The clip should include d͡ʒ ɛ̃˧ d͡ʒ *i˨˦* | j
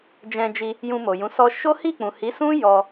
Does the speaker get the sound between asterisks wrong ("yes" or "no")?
yes